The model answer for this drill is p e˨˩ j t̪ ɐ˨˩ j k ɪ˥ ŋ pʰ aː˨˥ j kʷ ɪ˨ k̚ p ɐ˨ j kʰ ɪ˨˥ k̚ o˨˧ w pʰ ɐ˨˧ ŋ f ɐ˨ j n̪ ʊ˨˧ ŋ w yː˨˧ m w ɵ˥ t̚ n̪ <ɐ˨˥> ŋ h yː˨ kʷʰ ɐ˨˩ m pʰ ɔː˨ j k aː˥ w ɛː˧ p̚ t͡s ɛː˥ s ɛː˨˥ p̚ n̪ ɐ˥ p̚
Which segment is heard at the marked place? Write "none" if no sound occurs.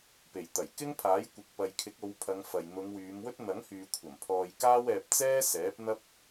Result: ɐ˨˥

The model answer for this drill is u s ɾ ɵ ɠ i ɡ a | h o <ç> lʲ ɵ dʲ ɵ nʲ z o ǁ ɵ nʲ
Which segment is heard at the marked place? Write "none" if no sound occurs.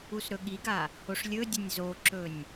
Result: ʂ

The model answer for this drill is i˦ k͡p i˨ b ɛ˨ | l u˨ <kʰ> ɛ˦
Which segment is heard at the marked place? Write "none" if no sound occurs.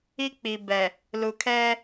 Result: kʰ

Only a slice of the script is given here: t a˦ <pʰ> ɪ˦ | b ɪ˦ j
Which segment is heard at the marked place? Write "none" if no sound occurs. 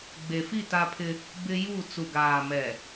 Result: pʰ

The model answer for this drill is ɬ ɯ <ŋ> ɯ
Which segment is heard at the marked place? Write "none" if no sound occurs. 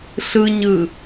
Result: ɲ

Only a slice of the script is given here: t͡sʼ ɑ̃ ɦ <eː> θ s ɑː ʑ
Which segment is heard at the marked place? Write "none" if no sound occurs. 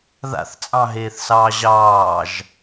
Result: eː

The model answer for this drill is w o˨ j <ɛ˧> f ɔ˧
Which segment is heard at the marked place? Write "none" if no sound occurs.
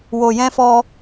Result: ɛ̃˧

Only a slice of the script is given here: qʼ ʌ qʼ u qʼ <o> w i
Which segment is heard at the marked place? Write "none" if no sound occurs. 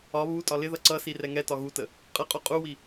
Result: u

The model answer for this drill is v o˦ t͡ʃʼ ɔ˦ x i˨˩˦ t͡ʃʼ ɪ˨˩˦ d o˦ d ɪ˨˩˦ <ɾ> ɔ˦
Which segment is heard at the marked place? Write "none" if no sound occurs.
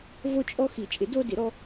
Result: ɾ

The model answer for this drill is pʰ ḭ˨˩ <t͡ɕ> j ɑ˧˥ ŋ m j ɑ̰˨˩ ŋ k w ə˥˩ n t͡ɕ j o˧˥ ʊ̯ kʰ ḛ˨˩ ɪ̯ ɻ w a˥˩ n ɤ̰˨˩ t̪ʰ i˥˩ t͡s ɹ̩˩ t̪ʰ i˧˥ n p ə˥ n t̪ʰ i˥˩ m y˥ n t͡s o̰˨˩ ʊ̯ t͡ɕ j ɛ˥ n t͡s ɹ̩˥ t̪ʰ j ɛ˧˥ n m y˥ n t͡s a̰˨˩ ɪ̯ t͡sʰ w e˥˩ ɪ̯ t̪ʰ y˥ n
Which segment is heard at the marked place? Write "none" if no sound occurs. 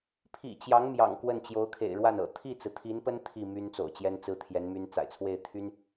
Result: t͡ɕ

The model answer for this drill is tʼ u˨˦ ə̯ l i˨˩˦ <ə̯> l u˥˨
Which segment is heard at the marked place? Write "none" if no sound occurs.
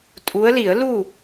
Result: ə̯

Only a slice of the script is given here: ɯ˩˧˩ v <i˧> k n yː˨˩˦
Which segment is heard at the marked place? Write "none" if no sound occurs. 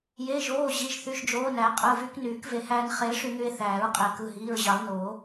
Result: y˧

